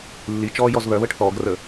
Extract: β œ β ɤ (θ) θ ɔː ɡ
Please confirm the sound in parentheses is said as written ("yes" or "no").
no